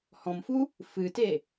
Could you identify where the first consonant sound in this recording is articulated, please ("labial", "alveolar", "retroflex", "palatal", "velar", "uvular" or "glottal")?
glottal